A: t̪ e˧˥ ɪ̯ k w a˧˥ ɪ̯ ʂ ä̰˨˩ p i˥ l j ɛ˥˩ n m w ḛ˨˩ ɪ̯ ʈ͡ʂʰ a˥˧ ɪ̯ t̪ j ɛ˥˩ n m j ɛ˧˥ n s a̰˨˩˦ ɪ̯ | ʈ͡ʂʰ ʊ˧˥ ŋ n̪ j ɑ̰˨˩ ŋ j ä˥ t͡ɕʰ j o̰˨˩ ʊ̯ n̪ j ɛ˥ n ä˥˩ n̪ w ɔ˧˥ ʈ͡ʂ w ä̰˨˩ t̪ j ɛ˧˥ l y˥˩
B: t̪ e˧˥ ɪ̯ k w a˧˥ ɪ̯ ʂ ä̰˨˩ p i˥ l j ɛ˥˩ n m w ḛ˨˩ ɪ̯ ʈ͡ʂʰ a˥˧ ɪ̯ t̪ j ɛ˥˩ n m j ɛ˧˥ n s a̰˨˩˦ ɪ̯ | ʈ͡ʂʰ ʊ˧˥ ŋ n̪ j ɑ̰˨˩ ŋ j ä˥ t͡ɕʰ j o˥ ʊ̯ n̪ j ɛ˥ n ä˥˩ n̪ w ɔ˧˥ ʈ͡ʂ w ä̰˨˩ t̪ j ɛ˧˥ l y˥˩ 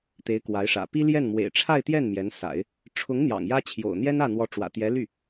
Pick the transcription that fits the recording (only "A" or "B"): A